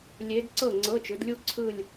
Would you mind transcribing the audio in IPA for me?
lʲ e˧˥ d ǀ ɤ˥˩ ŋ͡ǀ ɤ˧˥˧ t͡ʃ ɯ˩˥ d lʲ u˥˧ ǀʰ ɯ˥˧ lʲ

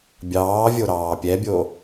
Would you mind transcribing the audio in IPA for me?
bʲ ɑː vʲ o ɾ ɑː pʲ ɛ bʲ o

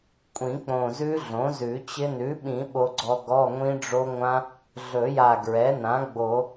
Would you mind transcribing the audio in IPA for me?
kʷʼ ĩ˨˩˦ k͡p õ˨˩ z ʉ˦˥ ɮ õ˩˥ z ʉ˨˩˦ t͡ɕ ɪ˦˥ n ʉ˩˥ ɓ ĩ˨˩˦ ɓ o˧ ɡ͡ǀ ɔ˧ ɡ ɔ˧˥˧ ŋʷ ĩ˦˥ ɖ͡ʐ o˦˥ ŋʷ ã˦˥ | ɮ ɵ˨˩˦ j a˨˩ ɡ ɹ ɛ˩˥ n ã˩˥ ɡ͡b o˨˩˦

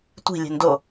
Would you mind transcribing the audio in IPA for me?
tʷ i̤ lʲ e̤ n d o

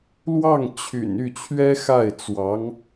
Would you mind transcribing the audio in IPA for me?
l w ɑ˥˩ ŋ t͡ɕʰ y̰˨˩ n y˥˩ t͡ɕʰ ɥ ɛ˥ x a˥˩ ɪ̯ t͡s w ɑ˧˥ ŋ

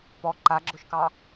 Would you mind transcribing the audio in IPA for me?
p ɔ ǃ a ɡ͡ǁ ʊ ʃ k ɑ

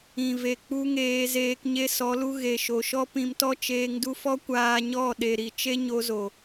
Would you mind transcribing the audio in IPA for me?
ĩ˨ v e˨ k͡p u˧ ŋ eː˧ z eː˧ k ɲ e˧ s ɔ˨˦ l u˧ ɣ e˨ ʃ o˨ ʃ ɔ˦ p ĩ˧ m t ɔ˦ t͡ʃ eː˧ ŋ d u˦ f ɔ˦ kʷ aː˧ ɲ ɔ˦˨ ɗ e˨ ɾ i˨ t͡ʃ e˦ ɲ o˧ z o˨

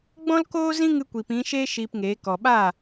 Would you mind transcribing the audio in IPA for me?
ɡ͡b ɔ̃˦ l k oː˦ z ĩ˦ ŋ ɨ˧ kʷ i˨ p ĩ˨˦ ʃ eː˦ ʃ iː˧ p ŋ eː˨˦ k ɔ˨ ɓ aː˦˨

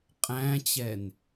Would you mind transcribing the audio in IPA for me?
qʼ æ̃ t͡ɕ ɛ n

